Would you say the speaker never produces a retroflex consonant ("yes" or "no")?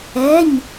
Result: yes